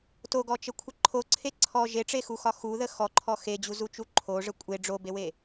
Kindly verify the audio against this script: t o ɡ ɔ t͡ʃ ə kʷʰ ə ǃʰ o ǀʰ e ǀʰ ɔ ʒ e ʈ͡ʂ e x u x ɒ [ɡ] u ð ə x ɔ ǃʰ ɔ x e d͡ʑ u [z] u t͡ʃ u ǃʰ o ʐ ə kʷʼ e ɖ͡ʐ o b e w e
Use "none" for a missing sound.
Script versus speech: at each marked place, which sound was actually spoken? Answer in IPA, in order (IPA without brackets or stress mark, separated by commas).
x, z